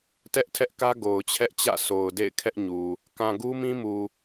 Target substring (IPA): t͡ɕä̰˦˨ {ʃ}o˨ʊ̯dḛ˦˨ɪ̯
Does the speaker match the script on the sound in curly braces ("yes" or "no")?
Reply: no